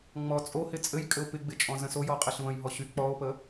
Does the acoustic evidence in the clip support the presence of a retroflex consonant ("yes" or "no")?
no